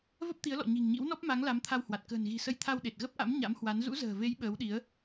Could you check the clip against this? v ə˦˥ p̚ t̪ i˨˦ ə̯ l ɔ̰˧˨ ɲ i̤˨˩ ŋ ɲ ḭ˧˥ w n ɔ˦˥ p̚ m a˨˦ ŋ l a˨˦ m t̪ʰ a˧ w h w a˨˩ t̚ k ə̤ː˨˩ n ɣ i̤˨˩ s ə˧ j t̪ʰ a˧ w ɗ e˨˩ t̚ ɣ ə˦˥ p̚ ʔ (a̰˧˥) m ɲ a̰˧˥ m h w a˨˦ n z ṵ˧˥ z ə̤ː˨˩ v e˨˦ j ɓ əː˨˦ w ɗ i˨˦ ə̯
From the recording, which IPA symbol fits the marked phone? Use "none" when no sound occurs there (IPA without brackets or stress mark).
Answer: a̰˧˥